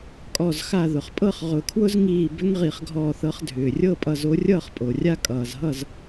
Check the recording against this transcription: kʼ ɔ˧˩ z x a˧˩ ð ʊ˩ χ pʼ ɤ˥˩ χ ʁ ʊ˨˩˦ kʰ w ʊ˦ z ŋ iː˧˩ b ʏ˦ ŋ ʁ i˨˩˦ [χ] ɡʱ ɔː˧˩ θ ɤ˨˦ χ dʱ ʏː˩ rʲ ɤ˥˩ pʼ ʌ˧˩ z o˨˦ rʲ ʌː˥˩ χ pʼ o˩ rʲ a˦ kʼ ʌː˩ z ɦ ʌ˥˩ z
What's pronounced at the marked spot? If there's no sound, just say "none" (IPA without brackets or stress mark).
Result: χ